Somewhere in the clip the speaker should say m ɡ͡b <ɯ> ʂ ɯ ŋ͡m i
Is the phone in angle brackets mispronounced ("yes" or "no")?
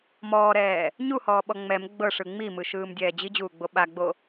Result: yes